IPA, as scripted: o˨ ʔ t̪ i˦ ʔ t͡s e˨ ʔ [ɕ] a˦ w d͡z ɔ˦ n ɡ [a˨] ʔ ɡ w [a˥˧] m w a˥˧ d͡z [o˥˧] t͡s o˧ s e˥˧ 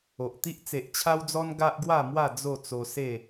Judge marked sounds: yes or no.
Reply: no, no, yes, yes

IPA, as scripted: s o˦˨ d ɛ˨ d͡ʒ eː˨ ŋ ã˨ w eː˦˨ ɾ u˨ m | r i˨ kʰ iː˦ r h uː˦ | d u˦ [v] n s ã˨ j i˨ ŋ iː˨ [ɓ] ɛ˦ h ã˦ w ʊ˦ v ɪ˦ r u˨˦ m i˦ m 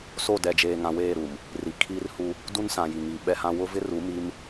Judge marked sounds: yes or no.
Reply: no, yes

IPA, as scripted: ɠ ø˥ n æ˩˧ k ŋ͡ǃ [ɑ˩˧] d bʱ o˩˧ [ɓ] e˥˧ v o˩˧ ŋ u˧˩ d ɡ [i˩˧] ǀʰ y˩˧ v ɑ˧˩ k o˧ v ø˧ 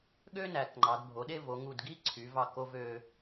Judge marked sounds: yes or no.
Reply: yes, no, no

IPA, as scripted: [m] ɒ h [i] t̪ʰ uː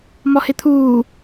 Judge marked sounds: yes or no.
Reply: yes, no

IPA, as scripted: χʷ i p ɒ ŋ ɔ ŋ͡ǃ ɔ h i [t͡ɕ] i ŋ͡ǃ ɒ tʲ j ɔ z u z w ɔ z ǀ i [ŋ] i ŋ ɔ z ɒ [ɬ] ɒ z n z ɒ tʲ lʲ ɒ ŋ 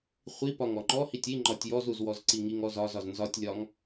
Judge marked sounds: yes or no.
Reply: no, yes, no

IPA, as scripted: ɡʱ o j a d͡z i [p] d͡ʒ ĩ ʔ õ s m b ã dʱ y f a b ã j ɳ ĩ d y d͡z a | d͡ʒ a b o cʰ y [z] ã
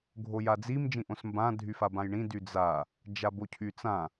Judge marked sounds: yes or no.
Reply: no, no

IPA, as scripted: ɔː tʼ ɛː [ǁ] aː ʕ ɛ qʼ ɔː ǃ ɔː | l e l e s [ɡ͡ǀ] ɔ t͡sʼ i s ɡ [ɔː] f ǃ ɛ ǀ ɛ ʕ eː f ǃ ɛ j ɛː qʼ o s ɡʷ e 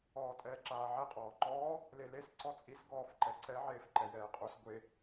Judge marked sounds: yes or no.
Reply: yes, no, yes

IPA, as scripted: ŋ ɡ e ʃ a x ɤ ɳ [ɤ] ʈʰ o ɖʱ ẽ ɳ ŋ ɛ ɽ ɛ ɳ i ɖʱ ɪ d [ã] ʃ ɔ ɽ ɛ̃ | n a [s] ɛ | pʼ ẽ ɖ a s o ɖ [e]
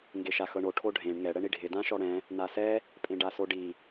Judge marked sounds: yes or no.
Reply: no, yes, yes, no

